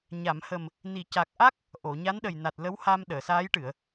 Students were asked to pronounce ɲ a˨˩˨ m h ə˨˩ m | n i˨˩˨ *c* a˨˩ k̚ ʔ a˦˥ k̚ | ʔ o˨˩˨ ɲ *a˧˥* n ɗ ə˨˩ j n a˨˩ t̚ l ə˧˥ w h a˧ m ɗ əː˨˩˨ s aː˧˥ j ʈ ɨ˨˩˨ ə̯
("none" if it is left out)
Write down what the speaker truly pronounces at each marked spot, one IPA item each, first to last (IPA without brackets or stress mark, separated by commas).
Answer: c, a˧˥